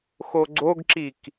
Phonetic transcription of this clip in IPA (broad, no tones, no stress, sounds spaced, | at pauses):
x o ɡ͡ǀ o ɡ ǁ i k